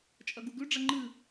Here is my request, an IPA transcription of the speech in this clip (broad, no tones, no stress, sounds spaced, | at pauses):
t͡ʃʼ ɐ ɡ u ɡ ʉ ɖ͡ʐ ɐ ŋ͡ǃ ɨ